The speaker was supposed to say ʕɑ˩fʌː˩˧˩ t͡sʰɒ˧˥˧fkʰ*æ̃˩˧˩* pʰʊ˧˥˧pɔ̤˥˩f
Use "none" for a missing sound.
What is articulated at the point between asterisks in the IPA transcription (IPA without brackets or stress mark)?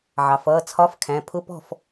æ̃˩˧˩